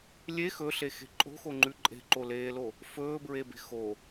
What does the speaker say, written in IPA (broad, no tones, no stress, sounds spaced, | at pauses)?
lʲ e x ɵ ɬ e x e̤ ǃʼ o̤ x o ŋ͡ǃ ʉ ǃʼ e̤ ǃ o l eː l o | f ɵː b ɹ e b e̤ x o